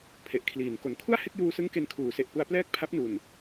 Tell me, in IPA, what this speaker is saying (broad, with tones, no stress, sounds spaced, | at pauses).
pʰ e˨˩ ʔ kʰ l iː˩˦ n k o˨˩ n kʰ u˥˩ a̯ h e˥˩ k̚ j uː˧ s ɯ˦˥ ŋ k e˧ n kʰ uː˩˦ s e˨˩ ʔ p u˧ a̯ p l ɛː˥˩ k̚ pʰ a˦˥ p̚ n u˨˩ n